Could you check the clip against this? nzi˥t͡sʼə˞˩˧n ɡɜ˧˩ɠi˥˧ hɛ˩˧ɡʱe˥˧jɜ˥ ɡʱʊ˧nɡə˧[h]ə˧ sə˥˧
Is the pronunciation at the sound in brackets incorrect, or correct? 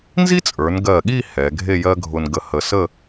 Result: correct